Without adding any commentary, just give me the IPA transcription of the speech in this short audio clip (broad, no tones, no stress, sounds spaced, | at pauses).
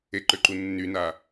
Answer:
e ǃ ø ǃ u nː y n a